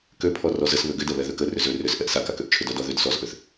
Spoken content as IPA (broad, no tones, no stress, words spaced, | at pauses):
køpʰɔ rɔzəsβø ɡʏdɛ βɛðøkə rʏzø rʏs ʔɛʔsakakøʔ t͡ʃʰʏdɔdɔ ðød sɔzʔøθ